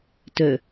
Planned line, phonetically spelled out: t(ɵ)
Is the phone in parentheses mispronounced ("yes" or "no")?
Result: no